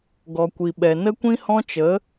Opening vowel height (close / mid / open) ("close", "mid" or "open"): mid